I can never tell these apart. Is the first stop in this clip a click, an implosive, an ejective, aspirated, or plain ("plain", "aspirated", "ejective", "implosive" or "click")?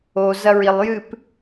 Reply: plain